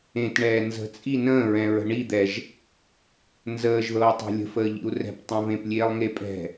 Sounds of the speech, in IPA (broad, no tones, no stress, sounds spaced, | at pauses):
ẽ t ɳ ɛː n z ə̤ t͡sʼ i n ə̃ː ɹ ɛ̃ ɹ ə̤ ɳ i d̪ ɛ ʒ | n z əː ʒ ð ɤː tˤ ɛ̤ lʲ ə̤ f əː ʎ ḭ u̯ r ɛ̤ p tˤ ɛ̃ v ẽ p lʲ eː lˠ ŋ e pʼ ɛ̤